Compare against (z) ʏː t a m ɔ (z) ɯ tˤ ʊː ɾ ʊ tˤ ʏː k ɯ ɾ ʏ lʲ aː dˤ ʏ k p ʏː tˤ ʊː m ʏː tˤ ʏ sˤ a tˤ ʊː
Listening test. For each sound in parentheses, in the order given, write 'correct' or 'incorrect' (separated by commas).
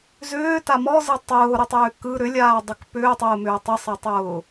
correct, correct